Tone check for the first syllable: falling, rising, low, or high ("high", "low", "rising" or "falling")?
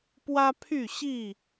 high